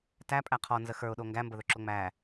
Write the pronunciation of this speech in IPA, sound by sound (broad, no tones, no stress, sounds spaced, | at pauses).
t æ pʼ æ qʰ ɔ n z ə x ə˞ ʊ̯ ɗ o ŋ ɡ æ m b ə ð ɵ ǁ o ŋ͡m æ